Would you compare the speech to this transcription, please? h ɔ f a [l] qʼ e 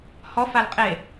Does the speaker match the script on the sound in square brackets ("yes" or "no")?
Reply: yes